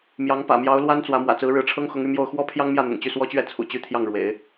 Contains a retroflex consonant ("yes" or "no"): yes